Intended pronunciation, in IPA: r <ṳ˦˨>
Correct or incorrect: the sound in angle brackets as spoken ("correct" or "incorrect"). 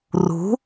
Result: incorrect